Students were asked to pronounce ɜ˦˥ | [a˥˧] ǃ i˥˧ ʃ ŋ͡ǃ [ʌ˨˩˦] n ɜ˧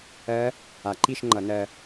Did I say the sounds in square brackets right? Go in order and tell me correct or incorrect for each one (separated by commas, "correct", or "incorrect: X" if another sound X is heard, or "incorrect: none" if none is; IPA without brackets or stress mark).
incorrect: a˨˩˦, correct